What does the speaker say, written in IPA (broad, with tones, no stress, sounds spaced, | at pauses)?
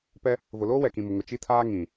p ɛ˦ | v ʊ˨ l oː˦ w ɛ˨ k ĩ˨ m ʊ˨ ŋ ʊ˨ t͡ʃ i˦ tʰ aː˦ ŋ ĩ˨